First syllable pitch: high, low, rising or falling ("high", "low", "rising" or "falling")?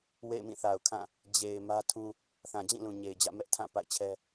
falling